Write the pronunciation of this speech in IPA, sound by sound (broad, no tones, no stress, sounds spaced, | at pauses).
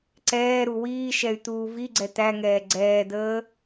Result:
ǀ ɛː ɾ u w iː ʃ ɛ y̯ t̪ uː v i ɡ͡ǀ ɛ t̪ æ ŋ ɛː ɡ͡ǀ ɛː d̪ əː